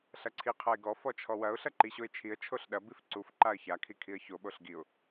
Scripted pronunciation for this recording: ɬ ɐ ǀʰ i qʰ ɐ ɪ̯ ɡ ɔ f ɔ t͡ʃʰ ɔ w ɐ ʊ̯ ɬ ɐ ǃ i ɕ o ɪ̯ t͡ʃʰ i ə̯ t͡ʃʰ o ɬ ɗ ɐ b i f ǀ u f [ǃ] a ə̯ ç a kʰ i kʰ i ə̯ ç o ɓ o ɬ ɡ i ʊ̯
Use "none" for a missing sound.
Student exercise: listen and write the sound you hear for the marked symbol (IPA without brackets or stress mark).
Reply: ǃ